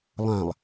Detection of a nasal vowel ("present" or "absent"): present